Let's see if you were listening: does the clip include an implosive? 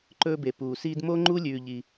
no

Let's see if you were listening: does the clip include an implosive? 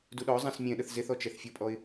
yes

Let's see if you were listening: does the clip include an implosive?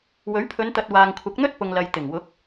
no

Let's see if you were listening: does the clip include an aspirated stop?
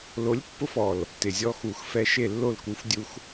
no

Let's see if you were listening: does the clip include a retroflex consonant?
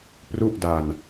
no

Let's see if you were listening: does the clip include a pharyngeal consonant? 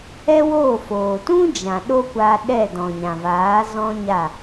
no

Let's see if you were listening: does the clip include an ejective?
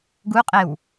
yes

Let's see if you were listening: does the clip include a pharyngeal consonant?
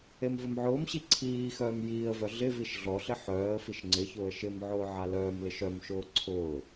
yes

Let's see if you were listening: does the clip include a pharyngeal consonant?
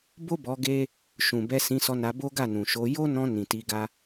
no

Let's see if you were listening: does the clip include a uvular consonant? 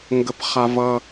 yes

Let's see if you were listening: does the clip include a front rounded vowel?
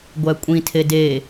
no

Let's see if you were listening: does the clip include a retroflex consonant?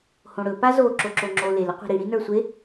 yes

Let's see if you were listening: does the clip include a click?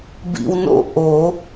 no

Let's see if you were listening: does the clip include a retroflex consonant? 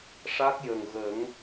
yes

